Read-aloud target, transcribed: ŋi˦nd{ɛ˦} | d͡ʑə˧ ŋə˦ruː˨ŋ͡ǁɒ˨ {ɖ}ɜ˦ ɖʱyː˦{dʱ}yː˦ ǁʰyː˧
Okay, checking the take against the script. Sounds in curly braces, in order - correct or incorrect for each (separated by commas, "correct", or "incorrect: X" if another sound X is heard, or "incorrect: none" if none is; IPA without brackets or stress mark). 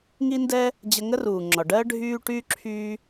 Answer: correct, correct, incorrect: ʈ